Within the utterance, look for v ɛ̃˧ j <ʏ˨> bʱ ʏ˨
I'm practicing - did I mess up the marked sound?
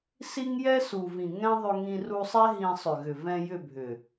yes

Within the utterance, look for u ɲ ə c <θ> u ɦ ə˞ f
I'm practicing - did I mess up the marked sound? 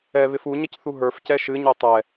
no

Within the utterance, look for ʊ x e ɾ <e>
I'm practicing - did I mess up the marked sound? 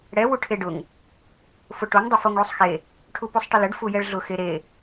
no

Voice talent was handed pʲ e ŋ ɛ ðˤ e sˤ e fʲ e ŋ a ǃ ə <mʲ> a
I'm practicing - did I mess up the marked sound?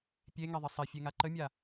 no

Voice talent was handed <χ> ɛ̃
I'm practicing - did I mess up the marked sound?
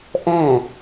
yes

